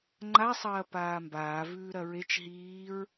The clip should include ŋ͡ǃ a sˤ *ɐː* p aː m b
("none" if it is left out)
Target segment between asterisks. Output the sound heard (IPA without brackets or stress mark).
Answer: ɐː